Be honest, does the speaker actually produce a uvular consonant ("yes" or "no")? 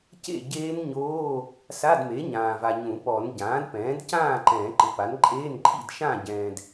no